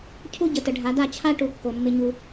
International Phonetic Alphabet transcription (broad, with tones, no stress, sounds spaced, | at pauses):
cʰ u˦ ɟ ə˨ t ə˨ ɖʱ a˨˦ d a˦˨ t͡ɕʰ a˦ ʈ u˨ kː o˨ mː ɪ˦ ɲ u˦